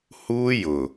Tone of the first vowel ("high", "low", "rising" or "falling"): high